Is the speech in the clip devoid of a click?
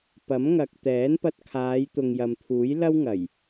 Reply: yes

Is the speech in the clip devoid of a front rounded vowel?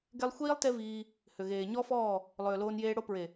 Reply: no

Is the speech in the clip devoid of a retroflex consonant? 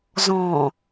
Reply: yes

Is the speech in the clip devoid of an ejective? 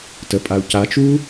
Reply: no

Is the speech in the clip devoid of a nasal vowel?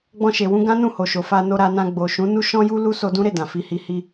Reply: no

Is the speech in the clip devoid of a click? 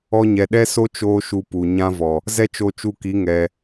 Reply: yes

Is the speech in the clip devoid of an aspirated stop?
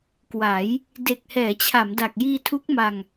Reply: no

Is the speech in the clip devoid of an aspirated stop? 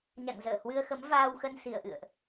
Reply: yes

